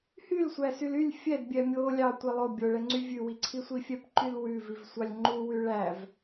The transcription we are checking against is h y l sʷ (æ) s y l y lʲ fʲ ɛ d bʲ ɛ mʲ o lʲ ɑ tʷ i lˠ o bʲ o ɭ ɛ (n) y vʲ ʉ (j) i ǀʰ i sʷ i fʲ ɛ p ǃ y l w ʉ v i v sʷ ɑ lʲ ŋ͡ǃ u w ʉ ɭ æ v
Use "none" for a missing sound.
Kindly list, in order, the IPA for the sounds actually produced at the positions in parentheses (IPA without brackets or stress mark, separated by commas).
æ, ŋ͡ǀ, w